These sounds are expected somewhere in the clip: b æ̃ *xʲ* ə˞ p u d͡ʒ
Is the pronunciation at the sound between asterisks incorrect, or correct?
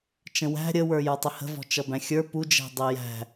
correct